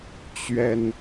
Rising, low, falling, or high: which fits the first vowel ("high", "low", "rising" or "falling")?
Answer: high